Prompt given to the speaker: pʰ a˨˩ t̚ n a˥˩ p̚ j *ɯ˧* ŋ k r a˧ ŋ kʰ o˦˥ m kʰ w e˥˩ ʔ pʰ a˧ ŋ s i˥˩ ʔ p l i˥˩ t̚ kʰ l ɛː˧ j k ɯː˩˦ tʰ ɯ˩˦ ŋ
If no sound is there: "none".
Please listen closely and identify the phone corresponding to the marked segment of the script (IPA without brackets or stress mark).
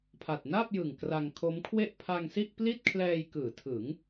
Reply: ɯ˨˩